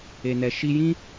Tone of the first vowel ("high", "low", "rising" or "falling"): low